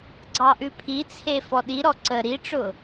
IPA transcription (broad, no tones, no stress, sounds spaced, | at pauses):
ɡ͡ǀ ɑ ʔ ʉ pʰ i t͡sʰ e f ɔ ɗ i ɾ ɔ ǀ ə ɾ i ʈ͡ʂ ʊ